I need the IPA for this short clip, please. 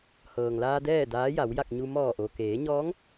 h ɤː˩ ŋ l aː˧ d ɛː˥˨ d aː˧˥ j a˩˧ w j a˥˨ k̚ ɲ u˧ m ɔː˧˩ ʔ o˩ k eː˩˧ ɲ ɔː˧˥ ŋ

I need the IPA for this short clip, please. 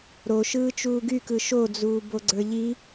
ɾ o ʃ ɯː t͡ʃ uː ɡ y k ɯ ʃ o d͡z uː b o ɡ͡ǀ ə˞ ʎ i

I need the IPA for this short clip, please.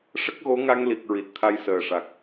ʂ ə˦˥ k̚ ɣ o˧˥ ŋ a˧ ŋ l i˨˩ k̚ ɹ i˨˩ t̚ t̪ʰ a˧ j s əː˨˩ ʂ a˨˩ k̚

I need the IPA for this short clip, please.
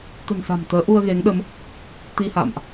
t̪ ə̤˨˩ n s a̤˨˩ m t̪ əː˨˦ ʔ u˧ ə̯ ɣ e˨˦ ŋ ɗ ə˨˦ m | t̪ i˧ h a̰ː˧˨ m ʔ

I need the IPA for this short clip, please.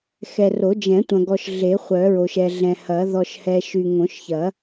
x ɛ˨ r o˨˩˦ d͡ʒ ɛ̃˨˩˦ tʷ ɐ̃˨ ɡ ɔ˨ ʃ ɮ e˨˩˦ χʷ œ˨˩˦ ɹ o˨ ʃ ɛ˨ ɮ ɛ̃˨ h ɐ˨˩˦ ð ɔ˨ ʃ h ɛ˨ ʃ y˨ ŋ õ˨˩˦ ʃ ç ɐ˨˩˦

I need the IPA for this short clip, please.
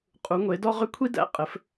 qʼ u˨˥ ŋʷ e˨˥ d ɔ˥ ʁ ʏ˥ kʷʰ i˥ d æ̰˨˥ qʼ ɘ˨˥ f

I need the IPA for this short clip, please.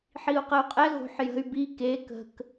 ħ i u̯ q ə u̯ qʼ ɛ ɣ o̤ ħ j ə̤ y̯ b i k e k ə̤ k

